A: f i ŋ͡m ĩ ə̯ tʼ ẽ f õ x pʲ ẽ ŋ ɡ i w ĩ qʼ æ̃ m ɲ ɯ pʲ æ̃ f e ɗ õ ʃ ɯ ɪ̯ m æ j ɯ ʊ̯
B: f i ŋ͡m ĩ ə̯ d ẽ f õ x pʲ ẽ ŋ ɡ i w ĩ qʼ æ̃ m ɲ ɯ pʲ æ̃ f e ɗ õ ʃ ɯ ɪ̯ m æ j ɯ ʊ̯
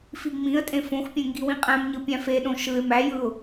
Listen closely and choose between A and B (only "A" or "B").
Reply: A